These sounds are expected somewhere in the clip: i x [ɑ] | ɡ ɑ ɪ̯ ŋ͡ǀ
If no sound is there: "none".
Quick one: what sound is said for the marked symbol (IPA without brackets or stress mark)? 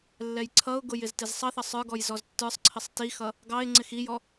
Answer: ʌ